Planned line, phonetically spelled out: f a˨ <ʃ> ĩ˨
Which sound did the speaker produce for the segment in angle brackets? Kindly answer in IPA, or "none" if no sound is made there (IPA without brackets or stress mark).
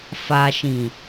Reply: ʃ